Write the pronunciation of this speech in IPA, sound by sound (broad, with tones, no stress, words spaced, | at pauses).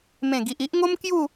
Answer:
mẽ˨˩ɡi˨ʔi˦ʔ ŋo˦m kju˥˧